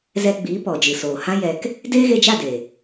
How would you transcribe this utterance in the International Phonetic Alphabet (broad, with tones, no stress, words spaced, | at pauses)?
zɛ˧ɡ͡biː˨˦ pɔ˨d͡ʒɨ˨soː˨hã˦ jɛ˧k | deː˦ɣe˧d͡ʒa˦˨de˨